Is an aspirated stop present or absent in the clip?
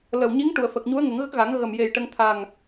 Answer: present